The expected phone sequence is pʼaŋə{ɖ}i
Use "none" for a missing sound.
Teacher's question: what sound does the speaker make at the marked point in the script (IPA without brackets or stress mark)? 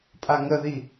ð